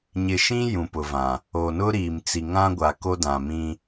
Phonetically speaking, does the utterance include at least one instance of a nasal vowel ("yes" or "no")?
yes